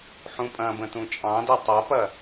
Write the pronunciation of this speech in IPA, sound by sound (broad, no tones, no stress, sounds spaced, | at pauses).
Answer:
ħ ũ pʼ ɐ̃ b ə̃ t ũ t͡ʃʼ ɑ̃ d ɛ tˤ ɐ p ɐ